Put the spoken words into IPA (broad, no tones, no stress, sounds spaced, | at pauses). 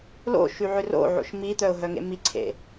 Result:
l o̰ ʃ y ʕ ø r o̰ ʕ o̰ ʃ m i t̪ œ ʊ̯ ɦ œ ŋ ḛ m i ǀʰ ḛ